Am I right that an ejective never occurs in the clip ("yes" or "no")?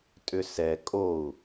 no